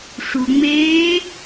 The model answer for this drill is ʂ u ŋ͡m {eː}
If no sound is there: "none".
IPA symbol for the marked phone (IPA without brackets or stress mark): eː